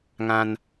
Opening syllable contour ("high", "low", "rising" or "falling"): high